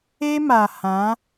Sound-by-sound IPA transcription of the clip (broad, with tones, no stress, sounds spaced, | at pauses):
e˦ m a˨ h ã˨˦